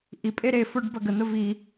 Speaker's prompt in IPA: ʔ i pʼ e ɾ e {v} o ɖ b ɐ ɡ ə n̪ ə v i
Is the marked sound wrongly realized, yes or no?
yes